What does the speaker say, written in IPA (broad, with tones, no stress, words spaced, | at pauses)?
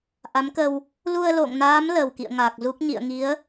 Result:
ʔa˨˦mkə˧w | lu˧ə̯lo̰˧˨ŋnaː˨˦m lə˨˩wkḭ˧˨ə̯ŋaː˨˩k̚zu˦˥k̚ ɲḭ˧˨ə̯ŋi˨˦ə̯